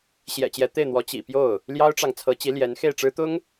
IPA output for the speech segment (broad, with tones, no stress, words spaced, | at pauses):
ɕjɛ̰˨˩t͡ɕjɛ˧˥ t̪e˥˩ɪ̯n̪wɔ˧˥ t͡ɕḭ˨˩pjo˥˩ʊ̯ | ljɑ˥ʊ̯ʈ͡ʂɑ˨ŋ t͡sʰɤ˧˥t͡ɕi˧˥ ljɛ˧˥nxe˥˩ɪ̯ʈ͡ʂɻ̩˥ t̪ʊ˥ŋ